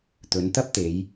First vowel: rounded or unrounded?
rounded